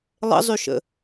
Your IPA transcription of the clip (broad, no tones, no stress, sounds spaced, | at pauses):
lˠ ə̰ zˤ y ʃ ə̰